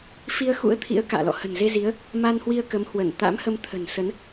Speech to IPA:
f i˧ ə̯ x ṵ˧˥ ə̯ t̪ʰ ḭ˧˥ ə̯ k a̰ː˧˨ l ɔ̰˧˨ h ə̤˨˩ n z e˧ z i˨˦ ə̯ | m a˧ n h w i˧ ə̯ k ə˨˦ m h w ə˧˩ n t̪ a̰˧˥ m h ə˧ m t̪ʰ ə̤˨˩ n s ə˨˦ n

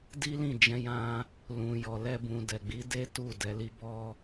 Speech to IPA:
d i˦ l ĩ˦˨ d͡ʒ ɛ̃˧ j ã˦ | l ũ˨ j ɔ˨ l ɛ˧ b ũ˨ d ɛ˨ ɡ͡b i˨˦ d e˦ t u˦˨ d ɛ˨˦ l i˦ b ɔ˦

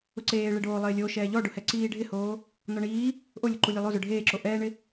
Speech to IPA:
ʊ ǀ eː ɭ e ɖ oː lˠ ɪː lʲ o ʃ ɛː ʎ ɔ ɖ ʊ h ɛ ǀ iː ɖʱ ɪ h oː | n ɔ ɳ iː | ʔ o lʲ o ǃ u lʲ e lˠ o z ʊ ɖʱ eː ǁ o ʔ ɛː ɳ ɪ

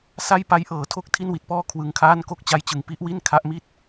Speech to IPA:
s a˥˩ j p a˦˥ j ʔ ɤː˩˦ tʰ o˥˩ k̚ tʰ i˥˩ n w i˨˩ t̚ p ɔː˥˩ kʰ w ɯ˧ ŋ kʰ aː˥˩ n k o˥˩ k̚ t͡ɕ a˦˥ j t͡ɕ ɯ˨˩ ŋ p i˦˥ ʔ w i˥˩ n kʰ a˦˥ ʔ m i˥˩ t̚

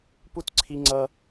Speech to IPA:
p u˦ t ǀʰ i˦ ŋ͡ǀ ʌ˦

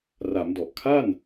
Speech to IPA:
r a˩˦ m d ɔ˨˩ ʔ kʰ a˥˩ n

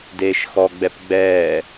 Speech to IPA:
d eː ʃ x ɔ ɡ͡b ɛ p ɡ͡b ɛː

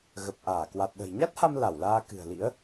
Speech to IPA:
ɣ ə˨˩ p̚ ʔ aː˧˩ k w a˨˩ t̚ ɗ ə̤˨˩ j ɲ a˦˥ t̚ h a˧ m l a˧˩ w l aː˧ k ɨ̤˨˩ ə̯ l ḭ˧˥ ə̯

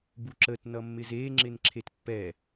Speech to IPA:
b u ǁ ə t n ʌ mː ɪ z e ŋ͡ǁ ɪ n ǁʰ e t pː ɛ

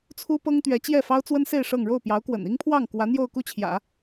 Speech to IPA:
t͡sʰ u˥ p ɤ˥ ŋ t̪ ɥ ɛ˧˥ t͡ɕ j ɛ˥˩ f ɑ˥ ʊ̯ t͡s w ə˥ n s e˥˧ ɪ̯ ʂ ɤ˥˧ ŋ ɻ o˥˩ ʊ̯ p j ɑ˧˥ ʊ̯ k w ə̰˨˩ n i˥ ŋ pʰ w ɑ˥˩ ŋ k w ä˧˥ n̪ j o˥˧ ʊ̯ k u˥˩ t͡ɕʰ j ä̰˨˩˦

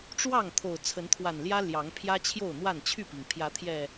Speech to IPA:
ʈ͡ʂ w ɑ˥˨ ŋ t̪ʰ o˨˩ ʊ̯ t͡sʰ ə˨˦ n t̪ʰ w a˨˩ n l j ä˦ l j ɑ˨˦ ŋ pʰ j ä˦ t͡ɕʰ j o˥˨ ʊ̯ n̪ w a˥˨ n t͡ɕʰ y˥˨ p i˩ ŋ pʰ j ä˨˦ t̪ʰ j ɛ˨˩

